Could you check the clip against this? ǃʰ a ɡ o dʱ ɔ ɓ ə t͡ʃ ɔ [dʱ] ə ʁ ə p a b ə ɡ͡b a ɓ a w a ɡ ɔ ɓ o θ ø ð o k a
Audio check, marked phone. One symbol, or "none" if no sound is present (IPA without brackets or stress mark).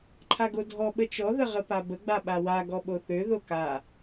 ð